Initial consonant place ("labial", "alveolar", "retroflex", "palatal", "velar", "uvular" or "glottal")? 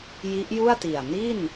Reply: palatal